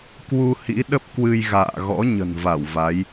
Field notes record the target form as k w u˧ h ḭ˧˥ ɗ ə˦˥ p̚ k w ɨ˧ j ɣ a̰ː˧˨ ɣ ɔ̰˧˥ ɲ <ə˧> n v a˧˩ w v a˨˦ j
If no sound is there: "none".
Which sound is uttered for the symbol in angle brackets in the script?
ə̤˨˩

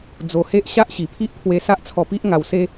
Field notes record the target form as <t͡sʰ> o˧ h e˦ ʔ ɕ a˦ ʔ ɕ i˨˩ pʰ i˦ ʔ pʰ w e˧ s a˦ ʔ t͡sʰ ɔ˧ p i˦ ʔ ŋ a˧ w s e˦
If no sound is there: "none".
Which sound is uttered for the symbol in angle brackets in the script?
d͡z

